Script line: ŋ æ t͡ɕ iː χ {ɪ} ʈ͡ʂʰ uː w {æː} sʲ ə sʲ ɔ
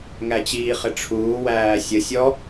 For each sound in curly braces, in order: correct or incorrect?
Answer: correct, correct

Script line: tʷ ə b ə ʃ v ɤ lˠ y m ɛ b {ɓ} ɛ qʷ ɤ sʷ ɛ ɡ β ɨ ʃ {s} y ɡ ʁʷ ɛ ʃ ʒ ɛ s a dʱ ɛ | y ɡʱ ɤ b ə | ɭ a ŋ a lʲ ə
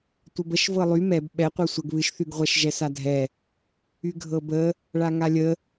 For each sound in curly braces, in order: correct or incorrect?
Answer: correct, incorrect

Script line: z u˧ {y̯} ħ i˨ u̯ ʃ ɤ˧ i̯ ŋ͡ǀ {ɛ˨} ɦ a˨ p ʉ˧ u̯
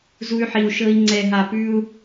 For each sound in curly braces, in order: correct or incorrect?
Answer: correct, correct

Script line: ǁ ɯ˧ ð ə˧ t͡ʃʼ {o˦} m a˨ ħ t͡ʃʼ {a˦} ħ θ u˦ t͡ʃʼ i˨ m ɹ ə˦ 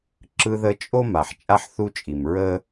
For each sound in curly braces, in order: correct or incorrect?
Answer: correct, correct

